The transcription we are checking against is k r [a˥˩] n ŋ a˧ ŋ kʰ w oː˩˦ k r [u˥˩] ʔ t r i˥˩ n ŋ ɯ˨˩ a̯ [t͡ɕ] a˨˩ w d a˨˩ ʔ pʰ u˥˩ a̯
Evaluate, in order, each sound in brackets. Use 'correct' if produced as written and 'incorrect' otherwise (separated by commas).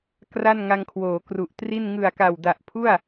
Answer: correct, incorrect, incorrect